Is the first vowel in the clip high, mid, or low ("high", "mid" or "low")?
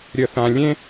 mid